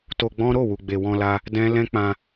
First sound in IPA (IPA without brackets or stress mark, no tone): t